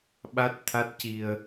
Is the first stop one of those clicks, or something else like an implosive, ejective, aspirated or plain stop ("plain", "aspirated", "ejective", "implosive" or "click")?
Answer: implosive